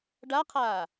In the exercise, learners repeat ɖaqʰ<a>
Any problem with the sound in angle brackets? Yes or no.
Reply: yes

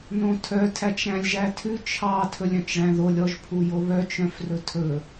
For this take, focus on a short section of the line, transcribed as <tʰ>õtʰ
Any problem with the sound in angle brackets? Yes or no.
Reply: yes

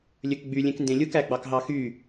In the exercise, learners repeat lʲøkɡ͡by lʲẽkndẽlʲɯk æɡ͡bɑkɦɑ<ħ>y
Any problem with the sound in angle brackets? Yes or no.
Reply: yes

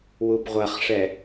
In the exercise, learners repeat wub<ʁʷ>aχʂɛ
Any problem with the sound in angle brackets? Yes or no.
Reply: no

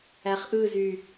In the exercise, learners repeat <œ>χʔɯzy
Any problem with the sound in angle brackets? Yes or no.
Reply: yes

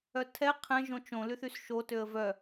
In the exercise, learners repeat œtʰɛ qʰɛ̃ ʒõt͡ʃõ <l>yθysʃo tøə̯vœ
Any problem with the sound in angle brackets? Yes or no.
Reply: no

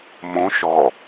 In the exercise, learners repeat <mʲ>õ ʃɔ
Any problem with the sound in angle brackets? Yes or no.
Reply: yes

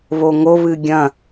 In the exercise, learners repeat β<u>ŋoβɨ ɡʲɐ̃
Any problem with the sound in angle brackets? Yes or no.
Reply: yes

